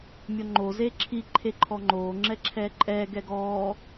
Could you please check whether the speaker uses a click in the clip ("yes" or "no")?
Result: yes